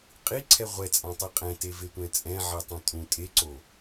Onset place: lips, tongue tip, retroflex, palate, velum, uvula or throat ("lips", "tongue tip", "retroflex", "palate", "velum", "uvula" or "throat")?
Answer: uvula